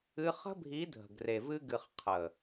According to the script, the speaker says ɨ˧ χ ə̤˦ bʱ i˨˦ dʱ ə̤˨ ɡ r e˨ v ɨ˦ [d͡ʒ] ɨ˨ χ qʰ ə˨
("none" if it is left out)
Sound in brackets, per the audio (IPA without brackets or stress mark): ɡ